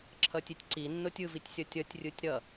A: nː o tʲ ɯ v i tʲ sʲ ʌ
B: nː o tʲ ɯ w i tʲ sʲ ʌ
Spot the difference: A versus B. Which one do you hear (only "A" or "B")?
A